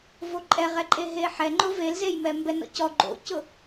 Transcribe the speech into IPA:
v o ǃʼ ɛ ʁ ɛ ǃʼ e ɦ e ħ ɛ ŋ͡ǃ ʊ v e l z e j m ɛ m b ɛ n ɔ̰ c ɔ ɡ͡ǃ o̰ c ʊ

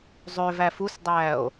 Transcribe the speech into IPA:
zˤ ø v æ f u s dˤ æː o̯

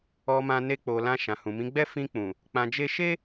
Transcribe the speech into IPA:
ɔ˧ m ã˧ n e˧ k͡p o˨ l ã˧ ʃ ã˨ h ũ˨ m ĩ˨˦ ɡ͡b ɛ˦ f ĩ˧ k͡p ũ˨ | k͡p ã˧ d͡ʒ e˦ ʃ e˦

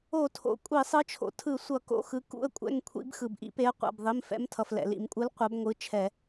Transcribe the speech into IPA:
o˧˩˧ tʰ o̰˩ kʷʼ i˧˩˧ sˤ ɯ˨˥ t͡ʃʰ o̰˩ tʰ ɯ˧˩˧ sʷ ʌ˧˩˧ k o̰˩˧˩ x ɯ˨˥ k ṵ˩˧˩ ə̯ kʷʼ ɛ̰˩˧˩ ŋ kʷʰ ḭ˧˩˧ b x ɯ˩ b ʔ ḭ˨˥ p e˨˥ ə̯ qʷ a̰˩˧˩ b ðˤ i˩˧˩ m f ɛ̰˨˥ m tʰ ʌ˩ f l ɛ̰˩ l ḭ˧˩˧ m kʷʼ ɯ˨˥ l qʷ a˨˥ b ŋʷ ɯ˩˧˩ t͡ʃʰ ɛ˧˩˧

